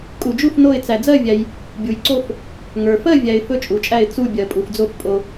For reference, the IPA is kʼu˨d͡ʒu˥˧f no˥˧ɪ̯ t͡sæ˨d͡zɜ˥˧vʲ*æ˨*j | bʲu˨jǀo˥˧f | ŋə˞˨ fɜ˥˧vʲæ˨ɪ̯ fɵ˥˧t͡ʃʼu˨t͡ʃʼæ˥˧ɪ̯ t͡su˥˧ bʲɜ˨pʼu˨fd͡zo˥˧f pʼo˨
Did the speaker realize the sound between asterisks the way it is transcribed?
yes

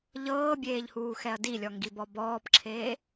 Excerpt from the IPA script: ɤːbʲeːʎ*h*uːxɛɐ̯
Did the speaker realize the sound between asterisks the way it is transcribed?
yes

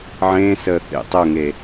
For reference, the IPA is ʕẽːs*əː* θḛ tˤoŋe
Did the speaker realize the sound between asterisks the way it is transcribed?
yes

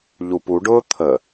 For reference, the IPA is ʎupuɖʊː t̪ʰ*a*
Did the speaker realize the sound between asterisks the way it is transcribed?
no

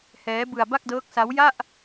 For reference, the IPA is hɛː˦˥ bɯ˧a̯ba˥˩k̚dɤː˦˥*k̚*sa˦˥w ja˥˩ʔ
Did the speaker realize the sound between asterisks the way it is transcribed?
yes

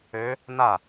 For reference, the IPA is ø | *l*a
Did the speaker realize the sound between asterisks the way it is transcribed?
no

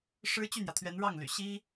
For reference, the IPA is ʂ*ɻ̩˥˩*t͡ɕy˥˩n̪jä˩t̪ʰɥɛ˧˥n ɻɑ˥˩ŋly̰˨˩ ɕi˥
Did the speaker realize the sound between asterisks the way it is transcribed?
no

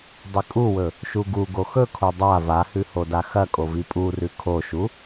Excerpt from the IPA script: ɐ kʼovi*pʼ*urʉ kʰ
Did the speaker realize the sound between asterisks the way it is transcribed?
yes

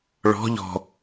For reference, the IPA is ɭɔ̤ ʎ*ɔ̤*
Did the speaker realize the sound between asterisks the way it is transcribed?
yes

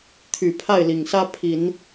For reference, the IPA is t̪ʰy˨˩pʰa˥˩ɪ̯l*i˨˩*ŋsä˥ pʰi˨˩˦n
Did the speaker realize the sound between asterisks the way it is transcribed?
yes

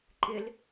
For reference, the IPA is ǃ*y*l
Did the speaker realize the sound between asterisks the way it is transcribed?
no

